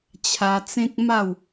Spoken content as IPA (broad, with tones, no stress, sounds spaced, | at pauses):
t͡ɕʰ a˧ t͡s ẽ˦ k̚ m a˥˧ w